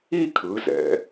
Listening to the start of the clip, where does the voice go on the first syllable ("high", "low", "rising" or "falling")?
falling